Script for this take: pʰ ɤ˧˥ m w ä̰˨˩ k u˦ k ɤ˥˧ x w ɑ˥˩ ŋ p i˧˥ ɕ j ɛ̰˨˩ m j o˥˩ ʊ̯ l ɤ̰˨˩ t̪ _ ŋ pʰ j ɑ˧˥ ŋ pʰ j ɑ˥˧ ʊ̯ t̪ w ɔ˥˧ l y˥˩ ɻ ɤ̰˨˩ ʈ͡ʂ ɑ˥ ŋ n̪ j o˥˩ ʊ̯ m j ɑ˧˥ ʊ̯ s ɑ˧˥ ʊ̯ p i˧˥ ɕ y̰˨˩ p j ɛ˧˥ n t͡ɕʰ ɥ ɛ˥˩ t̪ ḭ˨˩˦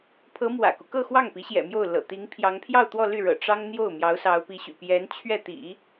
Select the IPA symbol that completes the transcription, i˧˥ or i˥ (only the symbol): i˧˥